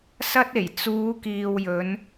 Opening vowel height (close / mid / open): open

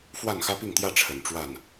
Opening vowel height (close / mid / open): open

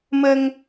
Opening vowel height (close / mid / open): mid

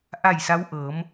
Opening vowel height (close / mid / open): open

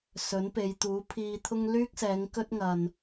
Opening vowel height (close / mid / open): mid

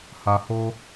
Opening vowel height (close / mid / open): open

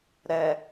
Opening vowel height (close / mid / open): mid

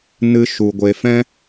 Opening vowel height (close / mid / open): close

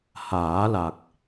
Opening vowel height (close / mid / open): open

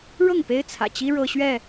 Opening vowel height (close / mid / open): mid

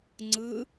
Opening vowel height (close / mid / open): close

